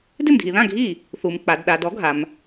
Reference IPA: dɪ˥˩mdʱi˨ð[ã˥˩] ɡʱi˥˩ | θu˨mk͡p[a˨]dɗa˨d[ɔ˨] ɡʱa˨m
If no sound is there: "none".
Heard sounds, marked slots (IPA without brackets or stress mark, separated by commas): ã˥˩, a˨, ɔ˨˥